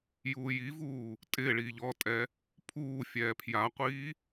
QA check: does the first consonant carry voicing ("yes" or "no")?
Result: yes